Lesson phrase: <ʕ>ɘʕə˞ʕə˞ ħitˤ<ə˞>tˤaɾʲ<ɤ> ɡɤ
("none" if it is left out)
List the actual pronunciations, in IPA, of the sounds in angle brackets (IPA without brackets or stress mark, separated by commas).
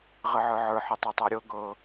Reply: ʁ, ɤ, ɤ